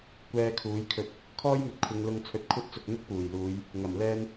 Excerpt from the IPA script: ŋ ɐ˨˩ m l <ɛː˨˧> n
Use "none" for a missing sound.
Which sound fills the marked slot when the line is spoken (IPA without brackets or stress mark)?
ɛː˧